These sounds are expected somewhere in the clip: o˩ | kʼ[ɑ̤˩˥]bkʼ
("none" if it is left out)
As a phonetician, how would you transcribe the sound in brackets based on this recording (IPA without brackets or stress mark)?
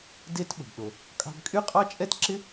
ɑ̤˧